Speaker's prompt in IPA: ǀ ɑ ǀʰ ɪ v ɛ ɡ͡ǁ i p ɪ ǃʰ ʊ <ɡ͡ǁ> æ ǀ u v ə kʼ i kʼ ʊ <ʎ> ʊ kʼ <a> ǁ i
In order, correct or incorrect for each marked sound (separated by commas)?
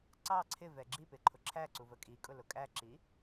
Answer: incorrect, incorrect, incorrect